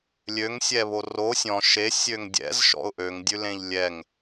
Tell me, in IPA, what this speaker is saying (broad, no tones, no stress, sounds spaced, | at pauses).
lʲ ø ŋ sʲ ɛ β o r o sʲ ɔ̃ ʃ e sʲ ø ŋ dʲ ɛ̰ z ʃ ɔ̰ ʊ̯ ʔ ø ŋ dʲ ʉ l ẽ ʎ lʲ ɛ ŋ